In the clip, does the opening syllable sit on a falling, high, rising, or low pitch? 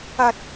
high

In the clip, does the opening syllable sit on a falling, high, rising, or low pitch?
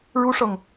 high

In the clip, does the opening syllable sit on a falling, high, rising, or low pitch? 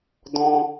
high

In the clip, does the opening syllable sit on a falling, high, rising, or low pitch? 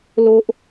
high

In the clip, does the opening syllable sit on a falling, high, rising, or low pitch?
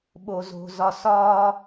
low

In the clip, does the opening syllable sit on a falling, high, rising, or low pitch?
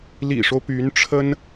low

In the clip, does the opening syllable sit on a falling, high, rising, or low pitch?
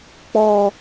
high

